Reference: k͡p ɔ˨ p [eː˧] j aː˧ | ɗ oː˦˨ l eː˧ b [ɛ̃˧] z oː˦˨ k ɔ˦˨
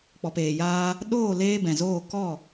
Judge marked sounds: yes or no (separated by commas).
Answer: no, no